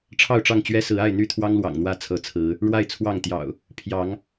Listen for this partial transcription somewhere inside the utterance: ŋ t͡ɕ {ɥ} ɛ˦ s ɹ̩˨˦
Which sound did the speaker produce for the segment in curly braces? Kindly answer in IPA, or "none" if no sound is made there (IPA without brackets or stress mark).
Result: ɥ